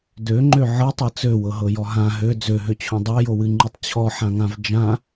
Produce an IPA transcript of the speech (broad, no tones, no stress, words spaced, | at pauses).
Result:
døŋ͡ǃø ʕɤtˤɤ t͡søwɤɦɤjɔ ɦã ɦø d͡zøɦøt͡ɕʰõ dˤɤjowɨŋ͡ǃɨtˤ t͡ɕʰɔħãŋãv d͡ʒã